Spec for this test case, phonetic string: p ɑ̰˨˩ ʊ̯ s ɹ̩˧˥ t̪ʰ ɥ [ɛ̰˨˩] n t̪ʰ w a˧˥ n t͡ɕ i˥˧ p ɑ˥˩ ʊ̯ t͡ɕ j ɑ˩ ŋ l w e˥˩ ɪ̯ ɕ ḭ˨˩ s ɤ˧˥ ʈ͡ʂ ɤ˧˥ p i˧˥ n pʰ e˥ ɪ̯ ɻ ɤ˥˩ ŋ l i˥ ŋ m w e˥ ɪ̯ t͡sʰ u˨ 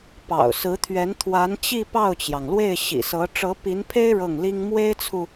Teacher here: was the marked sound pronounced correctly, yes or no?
no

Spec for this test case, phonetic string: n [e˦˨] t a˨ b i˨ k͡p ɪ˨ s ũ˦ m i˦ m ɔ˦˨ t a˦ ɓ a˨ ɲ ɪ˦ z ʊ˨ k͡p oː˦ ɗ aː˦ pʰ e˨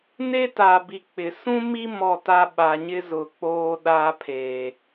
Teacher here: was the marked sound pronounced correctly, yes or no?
no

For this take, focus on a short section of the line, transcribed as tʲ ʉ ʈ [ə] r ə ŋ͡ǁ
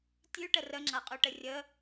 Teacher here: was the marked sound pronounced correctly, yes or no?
yes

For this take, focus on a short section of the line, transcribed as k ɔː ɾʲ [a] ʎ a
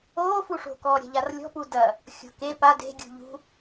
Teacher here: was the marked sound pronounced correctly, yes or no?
no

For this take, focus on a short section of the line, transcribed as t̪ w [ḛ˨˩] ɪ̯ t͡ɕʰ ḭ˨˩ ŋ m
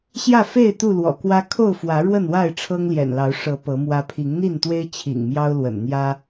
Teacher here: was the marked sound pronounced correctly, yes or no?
no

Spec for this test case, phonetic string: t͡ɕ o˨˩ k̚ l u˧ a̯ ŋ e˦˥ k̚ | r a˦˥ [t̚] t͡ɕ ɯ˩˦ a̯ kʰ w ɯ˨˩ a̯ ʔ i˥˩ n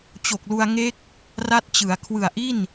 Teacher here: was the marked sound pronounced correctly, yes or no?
yes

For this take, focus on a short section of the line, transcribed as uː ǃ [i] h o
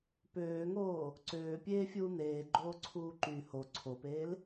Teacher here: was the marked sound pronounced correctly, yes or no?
no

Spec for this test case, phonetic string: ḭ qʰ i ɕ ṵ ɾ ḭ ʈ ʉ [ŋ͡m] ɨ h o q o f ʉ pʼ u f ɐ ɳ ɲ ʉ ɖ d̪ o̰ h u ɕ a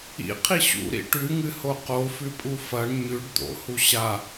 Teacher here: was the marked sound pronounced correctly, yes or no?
no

